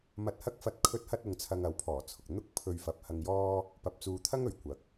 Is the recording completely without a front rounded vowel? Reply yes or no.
yes